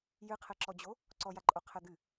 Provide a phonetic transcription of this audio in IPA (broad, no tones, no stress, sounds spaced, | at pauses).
j ɨ qʰ ɛ ǁ ɔ d͡ʑ o | ǀ ɔ j a ǃʼ o qʰ ɛ d̪ ɨ